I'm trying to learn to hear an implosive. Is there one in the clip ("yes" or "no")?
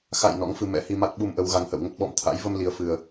yes